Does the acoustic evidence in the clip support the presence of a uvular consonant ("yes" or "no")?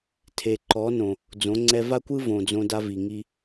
no